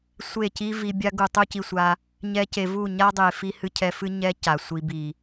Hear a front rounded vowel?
no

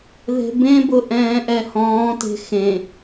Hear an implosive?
no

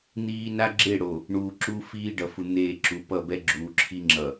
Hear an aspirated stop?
yes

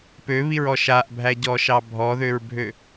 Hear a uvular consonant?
no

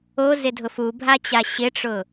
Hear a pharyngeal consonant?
no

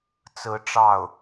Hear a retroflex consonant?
yes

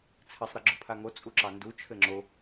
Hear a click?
yes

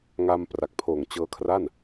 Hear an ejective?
no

